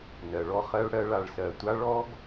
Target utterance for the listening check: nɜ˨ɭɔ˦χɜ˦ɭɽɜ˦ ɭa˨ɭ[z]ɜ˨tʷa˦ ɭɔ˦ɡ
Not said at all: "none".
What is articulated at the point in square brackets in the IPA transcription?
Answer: s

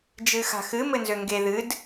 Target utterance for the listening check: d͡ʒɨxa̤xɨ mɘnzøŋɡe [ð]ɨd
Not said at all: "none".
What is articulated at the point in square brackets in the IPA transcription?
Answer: ð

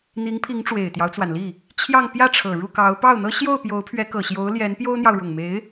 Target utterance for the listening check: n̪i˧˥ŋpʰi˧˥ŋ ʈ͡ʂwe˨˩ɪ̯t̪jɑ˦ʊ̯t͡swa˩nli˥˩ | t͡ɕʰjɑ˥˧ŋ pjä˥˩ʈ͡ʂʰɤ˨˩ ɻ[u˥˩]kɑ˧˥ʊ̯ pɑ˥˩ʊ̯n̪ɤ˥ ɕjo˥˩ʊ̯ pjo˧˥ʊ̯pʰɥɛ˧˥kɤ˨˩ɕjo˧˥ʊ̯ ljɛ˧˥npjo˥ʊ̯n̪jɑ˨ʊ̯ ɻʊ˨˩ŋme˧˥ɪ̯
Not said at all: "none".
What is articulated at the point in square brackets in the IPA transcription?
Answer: u˥˩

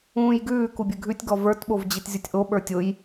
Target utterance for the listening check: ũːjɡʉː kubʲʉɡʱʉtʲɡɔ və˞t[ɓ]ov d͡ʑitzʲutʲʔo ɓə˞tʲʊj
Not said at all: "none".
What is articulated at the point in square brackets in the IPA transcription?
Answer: ɓ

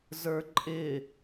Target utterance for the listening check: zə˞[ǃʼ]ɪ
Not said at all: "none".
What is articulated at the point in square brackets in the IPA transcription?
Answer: ǃʼ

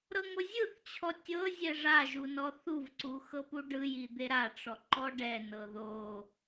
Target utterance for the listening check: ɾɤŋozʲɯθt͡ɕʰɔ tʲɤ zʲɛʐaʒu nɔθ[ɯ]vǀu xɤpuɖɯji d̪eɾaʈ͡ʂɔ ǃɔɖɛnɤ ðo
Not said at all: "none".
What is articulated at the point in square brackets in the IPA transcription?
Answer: u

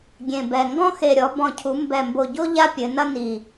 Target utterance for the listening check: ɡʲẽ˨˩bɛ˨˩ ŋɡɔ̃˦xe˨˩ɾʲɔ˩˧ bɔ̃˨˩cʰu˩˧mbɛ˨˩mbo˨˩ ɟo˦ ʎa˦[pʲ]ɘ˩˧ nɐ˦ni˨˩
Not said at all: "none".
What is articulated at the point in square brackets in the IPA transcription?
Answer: pʲ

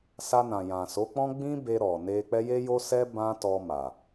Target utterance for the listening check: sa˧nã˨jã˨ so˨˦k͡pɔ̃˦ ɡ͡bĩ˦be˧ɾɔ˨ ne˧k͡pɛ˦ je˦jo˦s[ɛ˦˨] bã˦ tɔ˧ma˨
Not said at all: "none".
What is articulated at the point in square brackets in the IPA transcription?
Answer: ɛ˦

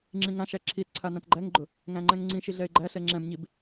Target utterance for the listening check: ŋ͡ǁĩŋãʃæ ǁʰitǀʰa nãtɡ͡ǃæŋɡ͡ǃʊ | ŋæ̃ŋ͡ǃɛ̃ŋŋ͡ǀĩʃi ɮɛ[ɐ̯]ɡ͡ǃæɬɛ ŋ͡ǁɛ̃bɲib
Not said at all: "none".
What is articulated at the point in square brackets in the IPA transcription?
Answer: e̯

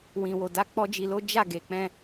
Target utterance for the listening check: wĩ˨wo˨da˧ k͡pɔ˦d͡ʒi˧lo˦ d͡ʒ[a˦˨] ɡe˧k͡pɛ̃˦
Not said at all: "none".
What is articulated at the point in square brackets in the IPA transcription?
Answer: a˦˨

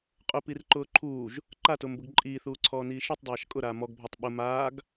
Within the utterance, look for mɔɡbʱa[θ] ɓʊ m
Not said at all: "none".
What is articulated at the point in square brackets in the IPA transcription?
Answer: tˤ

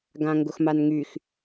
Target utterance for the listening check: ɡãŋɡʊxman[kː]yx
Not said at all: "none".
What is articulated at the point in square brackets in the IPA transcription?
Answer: ŋ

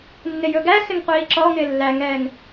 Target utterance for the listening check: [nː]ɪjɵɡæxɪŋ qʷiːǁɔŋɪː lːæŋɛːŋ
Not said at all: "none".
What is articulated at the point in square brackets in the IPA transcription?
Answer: nː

